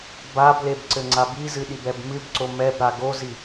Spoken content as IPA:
b a b l e b ǀ ɘ ŋ͡ǀ a b i z ɨ ɗ i b ɛ b m ɨ b ǀ o m ɛ b ɾ a ɡ o z i

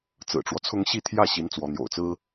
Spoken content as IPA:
t͡s ɹ̩˨˩ ʈ͡ʂ w ɔ˦ t͡sʰ ʊ˥ ŋ ɕ i˥˧ t̪ʰ j ä˥˩ ɕ i˧˥ n t͡s w ɔ˧˥ n̪ j o̰˨˩ ʊ̯ t͡s ɹ̩˥

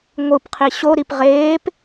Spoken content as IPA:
ŋʷ ɯ p qʰ i ɕ o ɾ i p ʁ eː p

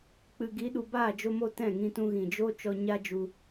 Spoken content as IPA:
k͡p ɨ˨ ɡ i˨˦ ɗ u˨ b aː˦˨ d͡ʒ o˧ m o˧ t ɛ̃˦˨ ŋ ĩ˧ t ũ˧ ɣ ĩ˨ d͡ʒ o˦ t͡ʃ ɔ˧ ɲ a˦ d͡ʒ u˧

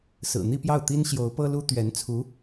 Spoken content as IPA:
s ɹ̩˨˩ n̪ i˥˧ p j ɑ˥˩ ʊ̯ t̪ i˥ n ɕ j o˧˥ ʊ̯ p ɤ˥ l u˥ t̪ ɥ ɛ˧˥ n t͡sʰ u˧˥

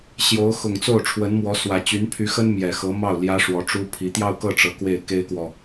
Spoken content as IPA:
ɕ j o˧˥ ʊ̯ x ʊ˨˩ ŋ t͡s o˥˩ ʊ̯ ʈ͡ʂʰ w ə˧˥ n m w ɔ˧˥ s w ä˨˩ t͡ɕ y˧˥ n pʰ y˧˥ x ə˥ n m j ɛ˨˩ x ɤ˧˥ m ɑ˥˩ ʊ̯ l j ä˥ ʂ w ɔ˧˥ ʈ͡ʂ u˥ pʰ i˧˥ t̪ j ɑ˥˧ ʊ̯ k ɤ˥˩ ʈ͡ʂ ɤ˧˥ k w e˥˩ ɪ̯ k e˥ ɪ̯ k w ɔ˨

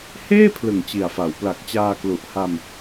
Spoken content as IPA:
h eː˥˩ pʰ l ɯ˨˩ ŋ t͡ɕ i˨˩ a̯ f a˩˦ w p l a˨˩ k̚ t͡ɕ aː˧ k l u˨˩ ʔ h a˧ m

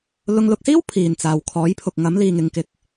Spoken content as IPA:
l ʊ˧ ŋ l ʊ˧ k̚ s iː˥ w pʰ iː˨ n t͡s aː˨ w kʰ ɔː˨˥ j pʰ ʊ˨ k̚ ŋ ɐ˨˥ m l iː˨ ŋ ɪ˨˧ ŋ k ɪ˨˥ k̚

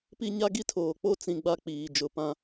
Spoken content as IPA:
p i˦ ɲ a˦ ɡ i˦ tʰ oː˨ k͡p o˦ t͡s ĩ˨ ɡ͡b a˦ k͡p iː˨ d͡ʒ ʊ˨ p ã˦

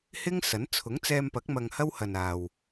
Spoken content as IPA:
h ɪ˥ ŋ s ɐ˨˥ n t͡sʰ ʊ˨˥ ŋ t͡s ɛː˧ m p ɐ˨˥ k̚ m ɐ˧ ŋ h ɐ˥ w h ɐ˨ n aː˨ w

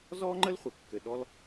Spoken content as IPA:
z ɔ˦ ŋ͡ǃ ə˦ l χʷ ɘ˨ kː ɘ˨ ɗ ɔ˦ l

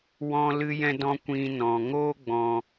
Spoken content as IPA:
w ɔ̃˦ l ɨ˦ j ɛ̃˦ d ɔ̃˦ kʷ ĩ˦ n ɔ̃˧ ŋ oː˦ ɡ͡b ɔ̃˧

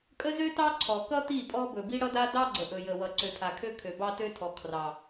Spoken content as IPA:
kʼ ə˦ z ø˦ t ɑ˦ ǀʰ ɔ˨ k ʌ˦ t̪ i˦˨ pʼ ɔ˦ b ɵ˨ b i˦ ɽ ʌ˦ d a˦ d ɑ˦ ɡ͡ǀ ə˨ ʔ ɵ˨ j ə˨ w ʌ˨ ǀ ø˨ pʰ a˨ kʰ ø˦ kʰ ø˨ b ɑ˦ t ø˦ tʰ ɔ˨ kʰ r ɑ˨

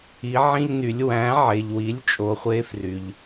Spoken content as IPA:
i˩˧ ʕ ĩ˧ ʎ n y˩˧ lʲ w æ̃˩˧ ʕ e˩ ʎ w i˩˧ lʲ t͡ʃʼ o˩˧ χʷ e˧ f r y˩ ʎ

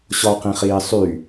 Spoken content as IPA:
ɕ ɔ q ĩ χ iː sˤ y

